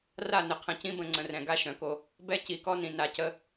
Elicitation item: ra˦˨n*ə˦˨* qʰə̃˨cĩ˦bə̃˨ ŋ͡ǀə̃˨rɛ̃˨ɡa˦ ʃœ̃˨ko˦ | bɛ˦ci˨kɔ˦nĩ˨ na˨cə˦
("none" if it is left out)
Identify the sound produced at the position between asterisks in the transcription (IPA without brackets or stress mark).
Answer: ə˨